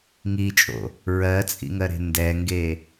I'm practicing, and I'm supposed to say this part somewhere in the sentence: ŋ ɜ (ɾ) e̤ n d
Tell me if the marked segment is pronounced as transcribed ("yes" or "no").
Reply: yes